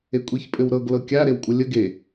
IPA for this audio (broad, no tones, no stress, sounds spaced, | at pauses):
e kʷʼ i ç pʼ ɘ w ɾ ɤ ɡ l ɤ kʲ a ɾ e w kʷʼ ə lʲ ə ɡ e